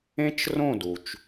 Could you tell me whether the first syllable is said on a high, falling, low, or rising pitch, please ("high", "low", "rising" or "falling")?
high